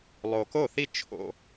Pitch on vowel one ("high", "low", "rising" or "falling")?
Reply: low